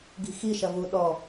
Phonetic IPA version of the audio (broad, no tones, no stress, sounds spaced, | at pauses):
ɡ i̤ x i ʃ ɐ v u ɗ ɔ